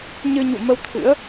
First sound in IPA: ɲ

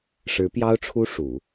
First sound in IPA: ʂ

